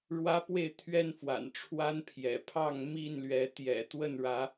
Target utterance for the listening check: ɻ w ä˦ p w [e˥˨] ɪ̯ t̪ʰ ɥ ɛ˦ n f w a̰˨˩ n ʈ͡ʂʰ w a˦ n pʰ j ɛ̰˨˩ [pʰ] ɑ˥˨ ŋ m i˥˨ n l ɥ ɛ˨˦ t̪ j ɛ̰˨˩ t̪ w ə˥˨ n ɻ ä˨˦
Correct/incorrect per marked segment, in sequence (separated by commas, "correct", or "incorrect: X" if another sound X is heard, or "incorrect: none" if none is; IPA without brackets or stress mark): correct, correct